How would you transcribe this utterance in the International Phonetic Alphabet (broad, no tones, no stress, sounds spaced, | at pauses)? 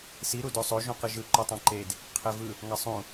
s i ɾ u d o sˤ o ʒ ũ q ɯ ʒ ɯ ǃ o tˤ ɑ̃ ǃ e d | qʰ e v ɯ | ŋ ɑ sˤ ũ